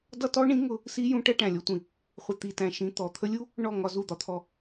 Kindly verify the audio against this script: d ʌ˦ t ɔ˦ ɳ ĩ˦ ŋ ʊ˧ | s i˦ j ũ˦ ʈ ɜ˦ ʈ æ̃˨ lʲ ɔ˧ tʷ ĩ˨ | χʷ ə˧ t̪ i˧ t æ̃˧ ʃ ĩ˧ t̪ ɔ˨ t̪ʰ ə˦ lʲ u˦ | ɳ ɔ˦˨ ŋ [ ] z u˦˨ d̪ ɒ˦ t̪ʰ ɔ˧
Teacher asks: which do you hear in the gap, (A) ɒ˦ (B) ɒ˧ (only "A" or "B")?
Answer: B